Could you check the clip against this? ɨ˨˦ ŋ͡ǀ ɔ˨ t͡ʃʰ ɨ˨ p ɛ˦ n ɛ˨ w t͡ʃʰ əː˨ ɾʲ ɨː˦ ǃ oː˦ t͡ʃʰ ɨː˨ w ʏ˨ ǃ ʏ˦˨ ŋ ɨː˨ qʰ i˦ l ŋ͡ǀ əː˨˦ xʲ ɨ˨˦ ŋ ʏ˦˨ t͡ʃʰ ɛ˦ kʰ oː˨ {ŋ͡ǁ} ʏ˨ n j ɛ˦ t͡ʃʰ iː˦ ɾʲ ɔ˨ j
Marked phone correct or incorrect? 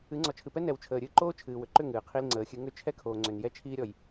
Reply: incorrect